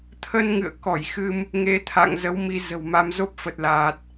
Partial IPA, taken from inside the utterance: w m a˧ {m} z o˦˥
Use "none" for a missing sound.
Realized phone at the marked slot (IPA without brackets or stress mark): m